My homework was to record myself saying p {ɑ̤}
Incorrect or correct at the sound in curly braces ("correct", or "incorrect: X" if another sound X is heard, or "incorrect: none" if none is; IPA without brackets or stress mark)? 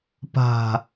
incorrect: a̤